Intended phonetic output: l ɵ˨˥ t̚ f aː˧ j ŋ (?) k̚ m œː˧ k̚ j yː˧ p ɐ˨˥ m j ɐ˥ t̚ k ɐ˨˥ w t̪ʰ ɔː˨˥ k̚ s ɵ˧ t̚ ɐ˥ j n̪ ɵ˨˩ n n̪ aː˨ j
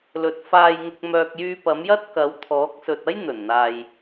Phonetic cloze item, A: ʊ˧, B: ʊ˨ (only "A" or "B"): A